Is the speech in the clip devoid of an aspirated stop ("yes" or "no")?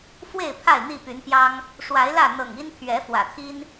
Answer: no